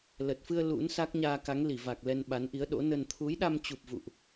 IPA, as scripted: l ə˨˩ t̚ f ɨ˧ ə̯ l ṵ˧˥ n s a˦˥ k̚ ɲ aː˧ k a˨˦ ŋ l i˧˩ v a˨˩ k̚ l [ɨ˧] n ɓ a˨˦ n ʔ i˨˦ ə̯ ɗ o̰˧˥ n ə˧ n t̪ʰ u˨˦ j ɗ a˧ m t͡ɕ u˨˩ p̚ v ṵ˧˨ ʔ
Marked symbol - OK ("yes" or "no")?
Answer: no